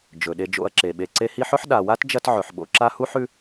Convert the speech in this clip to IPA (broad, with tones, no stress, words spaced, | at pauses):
d͡ʒɵ˩ɗe˨ d͡ʒo̰˨ɐ̯ǁe˩ ɓe˨ǀe˦hi˦ħɵ˥ħ ɗa˨wa˥t d͡ʒɐ˥tʕɵ˨ħɓo̰˦ ǁa˦hu˥ħʉ˦